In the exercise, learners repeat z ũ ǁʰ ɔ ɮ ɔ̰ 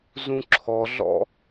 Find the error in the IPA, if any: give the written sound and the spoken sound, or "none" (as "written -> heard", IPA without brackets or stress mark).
none